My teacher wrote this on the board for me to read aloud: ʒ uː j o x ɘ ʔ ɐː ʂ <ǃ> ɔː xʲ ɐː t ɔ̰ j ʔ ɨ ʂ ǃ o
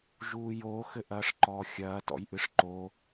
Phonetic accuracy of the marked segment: correct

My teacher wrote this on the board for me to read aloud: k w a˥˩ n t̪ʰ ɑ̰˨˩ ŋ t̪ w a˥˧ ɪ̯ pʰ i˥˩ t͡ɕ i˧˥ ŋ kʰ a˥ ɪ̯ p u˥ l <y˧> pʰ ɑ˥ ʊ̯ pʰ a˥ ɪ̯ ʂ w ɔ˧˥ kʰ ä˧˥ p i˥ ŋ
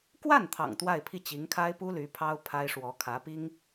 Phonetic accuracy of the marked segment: incorrect: y˧˥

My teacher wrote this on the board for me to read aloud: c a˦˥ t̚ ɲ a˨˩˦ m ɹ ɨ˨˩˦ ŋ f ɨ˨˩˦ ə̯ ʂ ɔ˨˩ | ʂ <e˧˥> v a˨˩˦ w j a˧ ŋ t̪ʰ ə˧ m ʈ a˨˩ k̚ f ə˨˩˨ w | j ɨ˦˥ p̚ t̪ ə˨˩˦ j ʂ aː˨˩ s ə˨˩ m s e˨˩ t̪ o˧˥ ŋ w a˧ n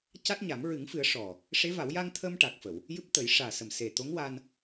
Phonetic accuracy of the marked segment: correct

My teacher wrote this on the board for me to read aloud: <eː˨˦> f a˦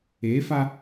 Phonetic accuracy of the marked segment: correct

